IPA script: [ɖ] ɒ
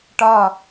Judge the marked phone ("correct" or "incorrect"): incorrect